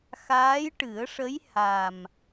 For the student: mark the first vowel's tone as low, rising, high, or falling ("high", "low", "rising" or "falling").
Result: rising